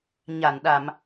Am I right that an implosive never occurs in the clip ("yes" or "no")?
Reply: no